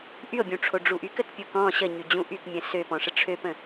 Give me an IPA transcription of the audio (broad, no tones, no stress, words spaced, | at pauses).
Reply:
ʔyo̯bʲũʈ͡ʂʰo ɖ͡ʐuʔyk ətpʲukɔ̃ ɕəɲyd͡ʑũ ʔykmʲə̃ søpɔ̃ʂə ʈ͡ʂʰøpə̃